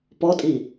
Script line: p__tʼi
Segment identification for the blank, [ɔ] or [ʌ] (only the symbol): ɔ